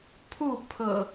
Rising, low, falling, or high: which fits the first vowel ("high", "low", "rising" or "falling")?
falling